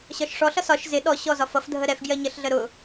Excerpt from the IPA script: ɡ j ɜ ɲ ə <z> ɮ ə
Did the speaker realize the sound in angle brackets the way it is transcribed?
no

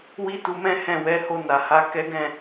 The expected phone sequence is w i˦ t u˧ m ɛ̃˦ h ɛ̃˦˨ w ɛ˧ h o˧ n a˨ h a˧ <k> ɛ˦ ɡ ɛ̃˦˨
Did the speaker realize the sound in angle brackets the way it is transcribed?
yes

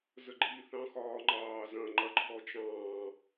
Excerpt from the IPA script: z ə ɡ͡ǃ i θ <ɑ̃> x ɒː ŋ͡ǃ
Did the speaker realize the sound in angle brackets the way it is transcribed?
yes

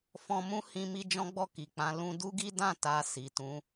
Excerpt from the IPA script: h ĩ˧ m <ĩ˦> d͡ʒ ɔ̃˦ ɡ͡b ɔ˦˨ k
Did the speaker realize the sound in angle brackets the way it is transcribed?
no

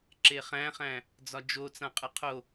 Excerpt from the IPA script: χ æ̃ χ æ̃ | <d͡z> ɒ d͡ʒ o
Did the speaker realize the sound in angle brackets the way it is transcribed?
yes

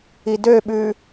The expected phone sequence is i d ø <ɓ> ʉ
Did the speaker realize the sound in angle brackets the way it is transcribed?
yes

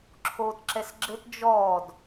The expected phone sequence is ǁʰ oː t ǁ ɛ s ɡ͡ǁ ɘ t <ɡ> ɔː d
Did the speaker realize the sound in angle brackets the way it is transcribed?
no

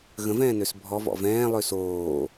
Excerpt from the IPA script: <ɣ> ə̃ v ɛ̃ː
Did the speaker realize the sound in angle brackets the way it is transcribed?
yes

